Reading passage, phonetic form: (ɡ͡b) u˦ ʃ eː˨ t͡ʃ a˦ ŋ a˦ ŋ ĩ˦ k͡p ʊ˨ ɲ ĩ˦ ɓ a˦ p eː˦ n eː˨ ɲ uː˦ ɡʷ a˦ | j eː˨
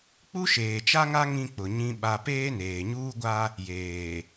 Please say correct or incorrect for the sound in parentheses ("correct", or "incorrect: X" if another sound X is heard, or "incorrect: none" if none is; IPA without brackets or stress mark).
incorrect: k͡p